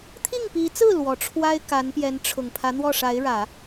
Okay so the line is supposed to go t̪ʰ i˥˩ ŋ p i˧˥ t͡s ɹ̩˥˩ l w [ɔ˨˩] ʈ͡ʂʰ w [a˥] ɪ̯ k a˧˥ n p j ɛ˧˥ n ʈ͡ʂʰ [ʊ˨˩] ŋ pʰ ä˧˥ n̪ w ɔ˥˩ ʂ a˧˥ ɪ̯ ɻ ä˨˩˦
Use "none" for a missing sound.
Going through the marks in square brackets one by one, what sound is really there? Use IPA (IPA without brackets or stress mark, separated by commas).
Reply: ɔ˨˩, a˥, ʊ˨˩